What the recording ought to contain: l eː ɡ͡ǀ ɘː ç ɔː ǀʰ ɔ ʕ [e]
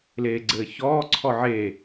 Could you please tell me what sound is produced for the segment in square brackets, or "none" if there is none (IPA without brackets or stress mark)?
e